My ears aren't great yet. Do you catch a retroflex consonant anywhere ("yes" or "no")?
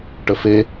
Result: yes